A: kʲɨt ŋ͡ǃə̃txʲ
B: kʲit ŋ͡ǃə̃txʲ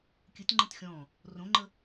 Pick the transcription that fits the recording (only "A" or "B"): A